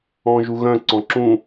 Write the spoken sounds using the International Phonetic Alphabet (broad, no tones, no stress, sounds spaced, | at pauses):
ɔ̃ ʒ u ɣ œ̃ ǀ ɔ̃ ǁ ũ